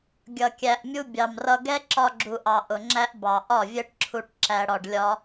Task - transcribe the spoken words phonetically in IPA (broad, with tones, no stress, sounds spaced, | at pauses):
ɡʲ ʌ˨ kʲ æ˨ ʔ mʲ u˧ bʲ ɑ˨ m r ʌ˧ ɡ ɛ˦ ǁ ɒ˧ ɡ͡ǁ u˨ ʔ ɑ˨ ʔ ʊ˨ ŋ͡ǁ æ˧ ʔ b ɑ˨ ʔ ɒ˦˨ vʲ ɛ˦ ʈ ǁʰ u˧ ʈ ǁ æ˧ ɽ ɒ˧ ɖ lʲ ɒ˦